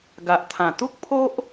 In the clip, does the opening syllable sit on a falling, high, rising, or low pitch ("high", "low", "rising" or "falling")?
low